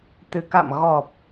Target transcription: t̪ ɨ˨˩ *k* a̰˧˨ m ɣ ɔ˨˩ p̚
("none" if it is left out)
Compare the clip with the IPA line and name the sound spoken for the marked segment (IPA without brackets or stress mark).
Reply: k